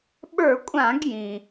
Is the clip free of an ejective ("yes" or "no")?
no